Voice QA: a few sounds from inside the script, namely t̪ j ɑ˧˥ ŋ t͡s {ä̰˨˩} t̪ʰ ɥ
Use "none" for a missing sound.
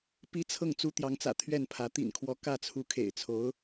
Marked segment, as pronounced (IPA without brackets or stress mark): ä̰˨˩